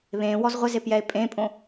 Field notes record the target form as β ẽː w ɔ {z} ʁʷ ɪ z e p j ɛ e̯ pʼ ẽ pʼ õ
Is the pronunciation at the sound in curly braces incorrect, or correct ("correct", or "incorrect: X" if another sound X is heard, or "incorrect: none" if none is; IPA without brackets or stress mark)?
correct